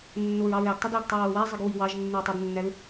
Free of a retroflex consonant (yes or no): yes